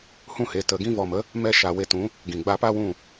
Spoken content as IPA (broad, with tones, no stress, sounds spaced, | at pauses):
h ũ˦˨ h e˨ t ə˨ ɡ ĩ˧ v ɔ˨ m ə˨˦ | m ɛ˦˨ ʃ a˨ w e˧ t ũ˨˦ | ɡ ĩ˨ ɡ͡b a˧ p a˦ w ũ˦˨